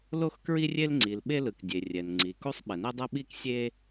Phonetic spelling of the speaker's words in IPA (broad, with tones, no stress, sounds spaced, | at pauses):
l o˥ x k ɹ i˥ rʲ e˥ l ŋ͡ǀ i˩ l ɓ e˥ l ɯ˩ k dʲ e˩ rʲ ɛ˩ n ŋ͡ǀ i˩ k u˥ sˤ ɓ ɛ˩ n e˥ dˤ ɛ˥ ɓ i˥ k sʲ e˥